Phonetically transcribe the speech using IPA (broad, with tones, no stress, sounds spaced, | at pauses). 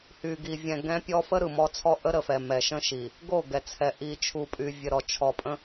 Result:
h y˨ ɡ i˨ vʲ ɛ̃˨ ɡ ɛ̃˦ pʲ ɔ˦ f ə˦ ɾ ɯ˨ m ɔ˦ t͡sʰ ɔ˦ ʔ ə˦ ɾ ə˨ f ɛ˨ m ɛ˨ ʃ ə̃˦ ʃ i˨ | ɡ o˦˨ ɡ ɛ˨ t͡sʰ ɛ˨ ʔ i˨ t͡ʃʰ u˨ pʼ y˨ vʲ ə˨ ɾ ɔ˨ t͡ʃʰ ɔ˨ pʼ ə̃˦